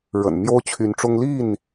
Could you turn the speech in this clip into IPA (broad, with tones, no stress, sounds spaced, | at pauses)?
ɻ ə̰˨˩ n m j o˦ ʊ̯ t͡ɕʰ y˨˦ n ʈ͡ʂ ʊ˦ ŋ l i˥˨ n